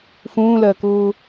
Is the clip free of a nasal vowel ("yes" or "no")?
no